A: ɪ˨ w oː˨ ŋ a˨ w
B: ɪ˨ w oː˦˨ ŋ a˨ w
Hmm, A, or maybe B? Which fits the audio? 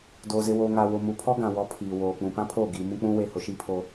A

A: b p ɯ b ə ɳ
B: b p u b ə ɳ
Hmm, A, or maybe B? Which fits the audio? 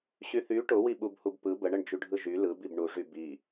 A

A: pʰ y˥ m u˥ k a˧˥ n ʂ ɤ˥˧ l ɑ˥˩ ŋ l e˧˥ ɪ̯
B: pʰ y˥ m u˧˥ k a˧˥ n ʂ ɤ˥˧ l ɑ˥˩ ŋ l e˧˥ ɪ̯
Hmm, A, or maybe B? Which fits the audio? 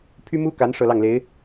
A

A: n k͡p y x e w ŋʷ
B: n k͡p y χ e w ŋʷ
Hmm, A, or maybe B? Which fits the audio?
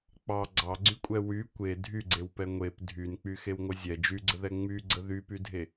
A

